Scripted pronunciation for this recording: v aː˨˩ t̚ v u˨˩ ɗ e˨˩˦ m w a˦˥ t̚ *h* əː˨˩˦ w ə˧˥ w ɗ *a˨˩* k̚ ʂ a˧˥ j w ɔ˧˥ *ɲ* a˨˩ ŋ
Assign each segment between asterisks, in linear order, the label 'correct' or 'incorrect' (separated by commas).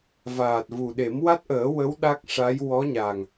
incorrect, incorrect, correct